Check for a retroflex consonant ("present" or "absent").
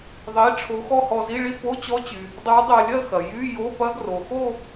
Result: present